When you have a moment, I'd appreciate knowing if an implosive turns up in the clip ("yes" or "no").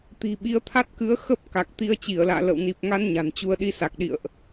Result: yes